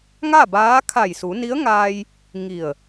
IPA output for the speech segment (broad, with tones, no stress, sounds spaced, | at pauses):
ŋ a˥˨ b aː˧˥ kʰ a˧˩ j s u˩˧ n i˧˥ ə̯ ŋ aː˧ j | ŋ i˧˩ ə̯